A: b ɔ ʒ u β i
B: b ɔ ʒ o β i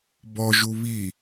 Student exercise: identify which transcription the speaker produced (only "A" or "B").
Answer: A